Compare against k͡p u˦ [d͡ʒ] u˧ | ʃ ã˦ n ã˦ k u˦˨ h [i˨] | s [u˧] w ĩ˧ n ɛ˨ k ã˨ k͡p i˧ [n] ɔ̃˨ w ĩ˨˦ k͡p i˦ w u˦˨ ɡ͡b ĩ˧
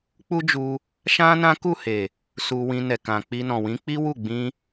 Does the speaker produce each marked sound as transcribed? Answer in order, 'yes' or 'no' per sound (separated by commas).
yes, no, yes, yes